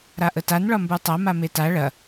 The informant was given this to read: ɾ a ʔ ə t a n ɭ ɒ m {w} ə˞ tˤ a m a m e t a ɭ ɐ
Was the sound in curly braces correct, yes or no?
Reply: no